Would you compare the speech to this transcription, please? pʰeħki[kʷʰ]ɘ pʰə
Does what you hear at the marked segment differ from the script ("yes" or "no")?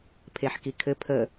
yes